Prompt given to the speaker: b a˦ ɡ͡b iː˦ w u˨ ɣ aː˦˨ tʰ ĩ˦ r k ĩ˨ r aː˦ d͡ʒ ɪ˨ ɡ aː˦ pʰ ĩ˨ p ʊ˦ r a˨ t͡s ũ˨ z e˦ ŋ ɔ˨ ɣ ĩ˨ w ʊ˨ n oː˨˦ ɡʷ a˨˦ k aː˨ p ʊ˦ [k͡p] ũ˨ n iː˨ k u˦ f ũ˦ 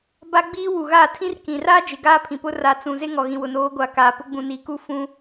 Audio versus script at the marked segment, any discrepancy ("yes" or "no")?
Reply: yes